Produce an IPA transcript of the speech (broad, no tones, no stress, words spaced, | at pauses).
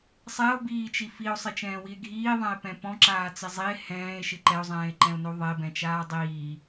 sˤɛo̯biːt͡ʃi fio̯sˤɪt͡ʃɛ̃ːwie̯ ɡʱiːðˤɛ̃e̯pɛ̃ pɔ̃ǁaːt͡sɪ zˤie̯ hɛ̃ːe̯ʃɪ ǃɛo̯zˤɛ̃ːe̯ǃɛ̃o̯no ðˤebɛ̃t͡ʃaː dˤiː